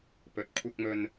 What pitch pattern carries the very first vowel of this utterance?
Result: low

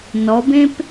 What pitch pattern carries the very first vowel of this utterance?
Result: rising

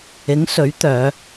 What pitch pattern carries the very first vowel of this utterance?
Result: rising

